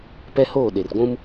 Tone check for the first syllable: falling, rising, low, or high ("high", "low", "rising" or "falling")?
high